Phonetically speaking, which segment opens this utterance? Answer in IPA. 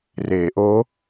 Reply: r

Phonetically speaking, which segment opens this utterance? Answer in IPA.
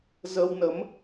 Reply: z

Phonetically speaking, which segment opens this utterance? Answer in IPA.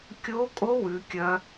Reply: kʲ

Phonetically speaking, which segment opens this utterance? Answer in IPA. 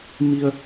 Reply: m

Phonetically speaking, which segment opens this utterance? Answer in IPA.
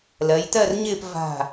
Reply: l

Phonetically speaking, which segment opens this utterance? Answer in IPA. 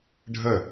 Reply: ɖʱ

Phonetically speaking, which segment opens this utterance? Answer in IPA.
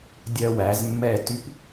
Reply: dʲ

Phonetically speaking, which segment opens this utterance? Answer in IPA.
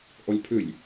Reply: ʔ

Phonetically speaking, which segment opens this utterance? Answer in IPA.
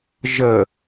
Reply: ʒ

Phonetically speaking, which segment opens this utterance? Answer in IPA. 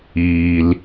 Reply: iː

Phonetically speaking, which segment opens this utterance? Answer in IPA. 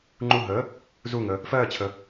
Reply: ŋ͡ǃ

